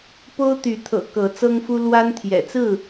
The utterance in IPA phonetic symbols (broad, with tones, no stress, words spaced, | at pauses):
po˦ʊ̯t̪y˨˦t̪ʰɤ̰˨˩ kɤ˨˦ t͡sɤ˦ŋfu˦ lwa˦nt̪ʰjɛ̰˨˩ t͡sɹ̩˥˨